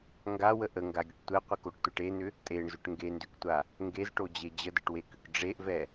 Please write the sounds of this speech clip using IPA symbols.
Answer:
ŋ ɡ a w ə ʔ ə ŋ ɡ a ɡʲ ə ʈ tʷ ɛ qʷ ə k o ʈ tʷ ɛ ʈ e n̪ ʏ | tʼ e ɳ z ʏ ʈ ŋ ɡ e n d ʏ k tʷ a | ŋ ɡ e z ʈ o d͡ʑ e d͡ʑ ə d ə ʈ w e k ʏ k ɖ͡ʐ e ʔ v ɛ

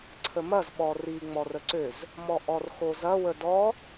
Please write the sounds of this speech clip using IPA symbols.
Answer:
ǀʰ ə m ɐ z ɓ ɔ r i ŋ͡m ɔ r ə ǀ ø z | m ɔ ʔ ɔ r x o z ɐ w ə d ɔ

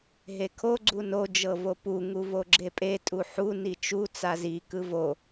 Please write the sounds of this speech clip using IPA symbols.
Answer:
ɦ e kʰ o ɡ͡ǀ u n o d͡ʒ ɤ v o p u ŋ u v o ɡ͡ǁ e pʼ e tʼ u ħ u n i t͡ʃ u t͡s a z i k ɯ v o

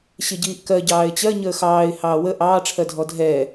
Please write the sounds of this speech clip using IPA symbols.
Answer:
ɕ ɪ ɟ iː ʔ k ɜ ɟ ɑː ɪ̯ t͡ɕ ɜ ɲ əː x ɑː ɪ̯ h ɑː w ə ʔ ɑː ʈ͡ʂʰ ɜ dʱ ɔ dʱ ɛ

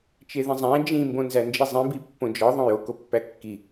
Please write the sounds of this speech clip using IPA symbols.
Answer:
t͡ʃ e ð ĩ zˤ æ̃ d͡ʒ ĩ m b õ n z æ n d͡ʒ i zˤ ĩ b i pː õ d͡ʒ ɒ ðˤ õ j o k o pː æ kː i

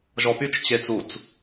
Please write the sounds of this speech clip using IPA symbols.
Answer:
ʒ ɔ p y t͡ʃ t͡ɕ e t͡s u t͡s

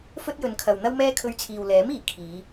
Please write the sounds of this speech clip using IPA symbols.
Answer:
f ɵ˥ t̚ j ɵ˨˧ n kʰ ɐ˨ w n̪ ɐ˥ w m ɛː˥ kʰ ɵ˧ ɥ t͡sʰ iː˨ w l ɛː˨˥ m iː˨˩ kʰ iː˨˧

